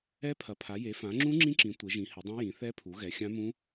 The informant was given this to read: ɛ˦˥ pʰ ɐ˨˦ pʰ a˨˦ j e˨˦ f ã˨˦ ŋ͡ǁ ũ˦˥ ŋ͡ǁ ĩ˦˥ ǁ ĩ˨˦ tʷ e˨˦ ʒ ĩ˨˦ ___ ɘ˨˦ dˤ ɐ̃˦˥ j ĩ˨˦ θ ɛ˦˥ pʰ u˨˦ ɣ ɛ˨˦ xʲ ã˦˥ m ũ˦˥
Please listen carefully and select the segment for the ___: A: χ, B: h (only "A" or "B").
B